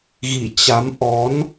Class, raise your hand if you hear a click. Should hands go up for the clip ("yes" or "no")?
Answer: no